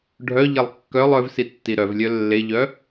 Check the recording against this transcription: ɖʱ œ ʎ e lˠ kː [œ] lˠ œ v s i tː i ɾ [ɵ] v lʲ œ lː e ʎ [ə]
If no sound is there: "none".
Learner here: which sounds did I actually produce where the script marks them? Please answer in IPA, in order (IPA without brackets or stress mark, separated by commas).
œ, œ, œ